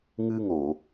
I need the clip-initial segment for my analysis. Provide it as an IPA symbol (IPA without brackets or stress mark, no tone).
ŋ